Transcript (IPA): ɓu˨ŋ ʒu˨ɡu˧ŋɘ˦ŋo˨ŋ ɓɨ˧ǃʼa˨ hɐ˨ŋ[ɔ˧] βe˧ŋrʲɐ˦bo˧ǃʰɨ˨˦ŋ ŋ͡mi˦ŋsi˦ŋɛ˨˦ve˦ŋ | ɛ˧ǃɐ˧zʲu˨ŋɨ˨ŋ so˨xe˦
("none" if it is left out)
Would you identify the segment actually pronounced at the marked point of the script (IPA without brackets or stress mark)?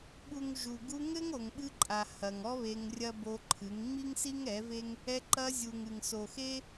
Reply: ɔ˧